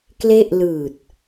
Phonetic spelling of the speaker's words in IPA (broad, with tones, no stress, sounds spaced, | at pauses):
k l e˥˩ ʔ l ɯː˨˩ t̚